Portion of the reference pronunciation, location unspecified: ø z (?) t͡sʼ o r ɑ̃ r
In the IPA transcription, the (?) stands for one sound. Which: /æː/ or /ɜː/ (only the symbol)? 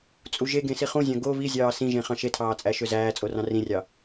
æː